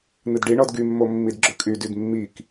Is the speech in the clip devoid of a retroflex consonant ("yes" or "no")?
no